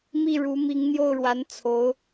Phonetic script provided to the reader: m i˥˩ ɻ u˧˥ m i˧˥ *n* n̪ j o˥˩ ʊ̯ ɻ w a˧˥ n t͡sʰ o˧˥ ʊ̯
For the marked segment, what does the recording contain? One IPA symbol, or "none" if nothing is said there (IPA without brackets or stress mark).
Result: ŋ